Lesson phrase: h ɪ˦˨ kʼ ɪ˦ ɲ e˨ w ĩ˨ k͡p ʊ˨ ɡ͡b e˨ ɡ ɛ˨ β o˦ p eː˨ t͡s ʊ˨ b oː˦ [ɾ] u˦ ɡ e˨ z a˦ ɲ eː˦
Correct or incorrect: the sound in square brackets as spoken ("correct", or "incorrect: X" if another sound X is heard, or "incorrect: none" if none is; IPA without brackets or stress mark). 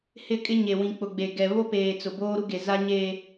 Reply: correct